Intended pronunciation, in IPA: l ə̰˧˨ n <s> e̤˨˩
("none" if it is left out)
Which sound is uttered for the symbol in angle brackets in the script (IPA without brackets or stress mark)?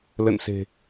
s